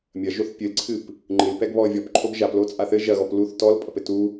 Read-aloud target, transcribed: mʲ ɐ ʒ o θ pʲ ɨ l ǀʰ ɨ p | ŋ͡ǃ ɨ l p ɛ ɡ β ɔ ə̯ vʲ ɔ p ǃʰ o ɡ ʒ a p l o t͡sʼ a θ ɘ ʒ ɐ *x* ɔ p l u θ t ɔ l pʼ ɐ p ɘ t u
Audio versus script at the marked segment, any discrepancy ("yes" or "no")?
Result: yes